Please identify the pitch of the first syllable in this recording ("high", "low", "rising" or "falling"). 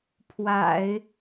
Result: low